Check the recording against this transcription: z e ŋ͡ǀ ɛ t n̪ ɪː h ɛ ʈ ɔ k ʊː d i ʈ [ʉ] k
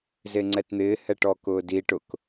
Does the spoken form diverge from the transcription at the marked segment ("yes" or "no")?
yes